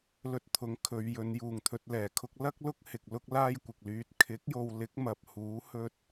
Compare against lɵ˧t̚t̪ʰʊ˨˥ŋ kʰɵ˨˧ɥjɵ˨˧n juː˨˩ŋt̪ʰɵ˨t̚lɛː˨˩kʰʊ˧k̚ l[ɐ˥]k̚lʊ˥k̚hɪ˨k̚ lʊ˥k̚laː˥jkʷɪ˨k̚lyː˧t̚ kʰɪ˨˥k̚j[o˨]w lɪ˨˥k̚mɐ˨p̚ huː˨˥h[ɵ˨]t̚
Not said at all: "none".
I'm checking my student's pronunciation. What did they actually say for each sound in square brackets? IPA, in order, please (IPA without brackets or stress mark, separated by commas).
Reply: ɐ˥, o˨, ɵ˧